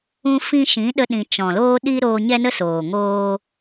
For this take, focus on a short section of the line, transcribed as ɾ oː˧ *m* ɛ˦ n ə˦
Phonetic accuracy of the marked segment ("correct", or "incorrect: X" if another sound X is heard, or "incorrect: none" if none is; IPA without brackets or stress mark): incorrect: ɲ